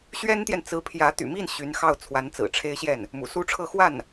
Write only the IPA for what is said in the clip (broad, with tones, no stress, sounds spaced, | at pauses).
ɕ ɥ ɛ˥ n t̪ j ɛ˨ n t͡s ɹ̩˧˥ pʰ j ä˧˥ t̪ y̰˨˩ m i˥˩ n ɕ y˧˥ n x ɑ˥˩ ʊ̯ t͡sʰ w a˧˥ n t͡s ɹ̩˨˩ ʈ͡ʂʰ e˥ ɪ̯ ɕ j ɛ˥˩ n | m ṵ˨˩ s u˥ ʈ͡ʂʰ ɤ˥˧ x w a˥˩ n